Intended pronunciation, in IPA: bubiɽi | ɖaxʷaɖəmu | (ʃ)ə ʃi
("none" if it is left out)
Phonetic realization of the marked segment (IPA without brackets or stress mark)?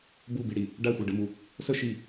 s